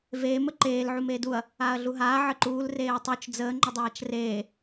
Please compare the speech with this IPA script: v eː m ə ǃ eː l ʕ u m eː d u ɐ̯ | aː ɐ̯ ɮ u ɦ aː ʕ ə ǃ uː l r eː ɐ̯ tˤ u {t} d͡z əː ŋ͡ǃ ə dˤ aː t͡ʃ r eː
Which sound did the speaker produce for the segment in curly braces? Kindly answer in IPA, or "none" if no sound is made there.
t͡ʃ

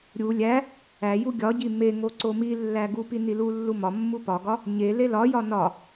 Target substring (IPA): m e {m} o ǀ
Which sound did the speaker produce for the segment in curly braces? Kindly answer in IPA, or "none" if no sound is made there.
ŋ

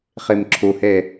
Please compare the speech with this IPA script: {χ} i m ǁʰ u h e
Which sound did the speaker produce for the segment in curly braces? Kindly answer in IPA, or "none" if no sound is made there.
χ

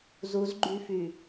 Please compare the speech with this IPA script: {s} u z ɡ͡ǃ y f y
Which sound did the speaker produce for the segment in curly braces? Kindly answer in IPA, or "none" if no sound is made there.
z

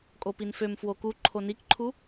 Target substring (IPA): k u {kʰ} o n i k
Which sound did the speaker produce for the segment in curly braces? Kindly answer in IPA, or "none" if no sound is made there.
ǃʰ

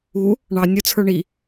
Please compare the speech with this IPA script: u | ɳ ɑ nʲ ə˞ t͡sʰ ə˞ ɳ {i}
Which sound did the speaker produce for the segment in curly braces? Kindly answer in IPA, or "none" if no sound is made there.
i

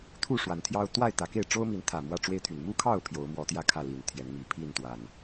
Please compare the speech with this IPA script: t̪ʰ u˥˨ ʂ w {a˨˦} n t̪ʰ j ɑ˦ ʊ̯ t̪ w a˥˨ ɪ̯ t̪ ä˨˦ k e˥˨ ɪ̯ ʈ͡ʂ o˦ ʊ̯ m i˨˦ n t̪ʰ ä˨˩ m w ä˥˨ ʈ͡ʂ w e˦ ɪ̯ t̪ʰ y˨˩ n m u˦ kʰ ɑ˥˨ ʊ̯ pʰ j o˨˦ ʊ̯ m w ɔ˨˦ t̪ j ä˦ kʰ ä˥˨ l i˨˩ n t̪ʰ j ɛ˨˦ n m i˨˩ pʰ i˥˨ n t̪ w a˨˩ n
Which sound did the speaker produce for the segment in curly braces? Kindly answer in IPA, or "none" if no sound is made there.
a˨˦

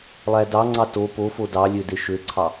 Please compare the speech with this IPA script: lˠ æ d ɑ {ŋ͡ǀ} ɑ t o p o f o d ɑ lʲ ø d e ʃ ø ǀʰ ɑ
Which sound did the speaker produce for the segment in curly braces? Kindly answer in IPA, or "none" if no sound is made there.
ŋ͡ǀ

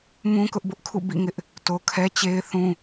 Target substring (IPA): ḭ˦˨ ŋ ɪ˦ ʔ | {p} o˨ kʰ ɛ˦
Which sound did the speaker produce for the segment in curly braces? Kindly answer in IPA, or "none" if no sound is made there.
t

